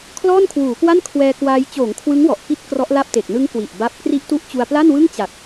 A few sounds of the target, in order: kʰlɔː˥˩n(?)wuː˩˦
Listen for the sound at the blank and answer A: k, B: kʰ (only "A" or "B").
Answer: B